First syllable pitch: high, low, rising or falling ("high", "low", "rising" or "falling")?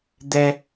high